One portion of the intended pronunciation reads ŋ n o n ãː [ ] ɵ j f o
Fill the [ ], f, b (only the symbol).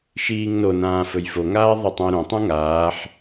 f